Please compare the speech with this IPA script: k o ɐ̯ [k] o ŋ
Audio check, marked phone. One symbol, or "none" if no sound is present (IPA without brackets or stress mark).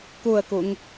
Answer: k